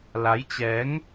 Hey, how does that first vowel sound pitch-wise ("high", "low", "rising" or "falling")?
rising